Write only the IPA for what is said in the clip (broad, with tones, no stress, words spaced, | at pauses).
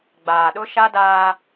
ɡ͡baː˨ɗʊ˦ʃa˦daː˦